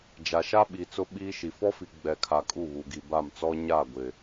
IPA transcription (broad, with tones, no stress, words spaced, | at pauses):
d͡ʒa˨ʃa˦ɓi˨ t͡sʊ˦ɓiː˦ʃi˨ fɔ˦fi˨ɡ͡bɛ˨kʰa˨ kʼu˦˨βu˨ɡi˨ ba˦˨mt͡sɔ˦ ɲa˦˨ɡʷɪ˨